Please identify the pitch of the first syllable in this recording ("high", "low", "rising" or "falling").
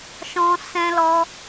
high